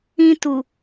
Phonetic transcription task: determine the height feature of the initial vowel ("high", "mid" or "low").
high